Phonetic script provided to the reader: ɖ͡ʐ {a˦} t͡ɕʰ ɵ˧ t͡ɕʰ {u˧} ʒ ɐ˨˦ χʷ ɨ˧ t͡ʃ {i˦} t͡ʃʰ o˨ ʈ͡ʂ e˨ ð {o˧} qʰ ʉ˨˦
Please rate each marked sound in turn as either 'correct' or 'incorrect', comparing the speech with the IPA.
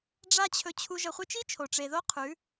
correct, correct, correct, incorrect: o˦

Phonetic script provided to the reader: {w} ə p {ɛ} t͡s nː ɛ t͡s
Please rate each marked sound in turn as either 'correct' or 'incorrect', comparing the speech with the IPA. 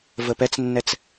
incorrect: v, correct

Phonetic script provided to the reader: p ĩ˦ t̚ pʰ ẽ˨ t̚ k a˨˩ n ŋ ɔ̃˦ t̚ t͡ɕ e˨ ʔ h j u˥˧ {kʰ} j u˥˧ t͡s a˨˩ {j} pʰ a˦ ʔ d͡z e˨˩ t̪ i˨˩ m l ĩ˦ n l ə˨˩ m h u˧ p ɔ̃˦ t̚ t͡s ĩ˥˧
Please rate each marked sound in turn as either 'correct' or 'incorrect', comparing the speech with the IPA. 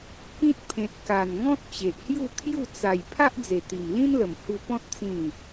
correct, correct

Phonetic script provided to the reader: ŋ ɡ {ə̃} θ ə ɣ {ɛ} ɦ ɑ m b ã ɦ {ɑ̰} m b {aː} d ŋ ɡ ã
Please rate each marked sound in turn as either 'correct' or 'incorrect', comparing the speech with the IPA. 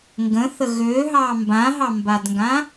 correct, incorrect: ø, incorrect: ɑ, incorrect: a

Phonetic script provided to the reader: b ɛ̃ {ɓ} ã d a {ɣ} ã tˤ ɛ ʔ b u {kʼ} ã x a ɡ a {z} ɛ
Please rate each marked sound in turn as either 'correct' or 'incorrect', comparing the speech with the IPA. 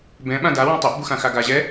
correct, incorrect: w, incorrect: x, incorrect: ʑ

